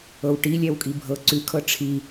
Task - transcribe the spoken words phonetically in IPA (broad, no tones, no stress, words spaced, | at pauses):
ɤwʈi lʲɛwkʼibʱɤ ǀʉ kʰɤʈ͡ʂʰi